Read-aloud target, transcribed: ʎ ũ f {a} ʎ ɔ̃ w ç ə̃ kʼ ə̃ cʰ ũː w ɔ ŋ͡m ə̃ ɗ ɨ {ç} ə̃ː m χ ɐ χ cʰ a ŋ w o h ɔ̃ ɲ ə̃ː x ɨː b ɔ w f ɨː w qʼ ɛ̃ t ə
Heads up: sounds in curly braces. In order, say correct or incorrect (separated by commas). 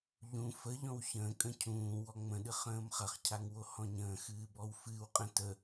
incorrect, incorrect